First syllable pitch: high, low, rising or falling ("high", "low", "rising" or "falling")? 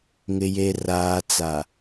low